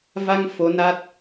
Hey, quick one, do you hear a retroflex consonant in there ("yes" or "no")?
no